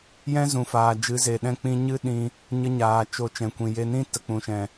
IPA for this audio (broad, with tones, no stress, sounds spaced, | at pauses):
j ɛ̃˦ z ũ˨ f aː˨ d͡ʒ ɨ˨˦ z e˨ ɗ ɛ̃˦ k͡p ĩ˧ ɲ ɨ˦ ɗ ĩ˧ | ɲ ə˧ ɲ aː˨ t͡ʃ o˨ t͡ʃ ɛ̃˨ kʷ ĩ˨ j e˧ n ĩ˦ t ə˨ k͡p ũ˨ ʃ ɛ̃˨